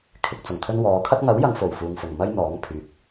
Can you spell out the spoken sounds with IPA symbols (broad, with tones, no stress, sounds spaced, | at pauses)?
kʰ ɪ˨ k̚ t͡s ʊ˨˩ ŋ t̪ʰ ɵ˧ n w ɔː˨˧ kʰ ɐ˥ t̚ ŋ ɐ˨˥ w j ɐ˨ ŋ f o˨˩ w f uː˨ ŋ f ʊ˨˩ ŋ m ɐ˥ j n̪ ɔː˨˥ ŋ pʰ yː˨ k̚